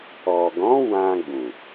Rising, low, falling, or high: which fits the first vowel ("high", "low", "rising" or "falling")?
low